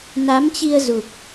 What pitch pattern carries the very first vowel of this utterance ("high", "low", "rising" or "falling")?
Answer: rising